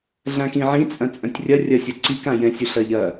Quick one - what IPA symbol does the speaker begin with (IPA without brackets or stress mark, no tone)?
ɮ